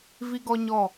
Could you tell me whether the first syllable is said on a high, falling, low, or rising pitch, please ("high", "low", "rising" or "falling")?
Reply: high